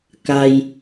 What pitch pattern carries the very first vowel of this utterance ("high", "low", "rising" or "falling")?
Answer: high